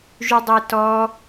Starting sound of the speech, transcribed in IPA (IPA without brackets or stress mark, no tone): ʒ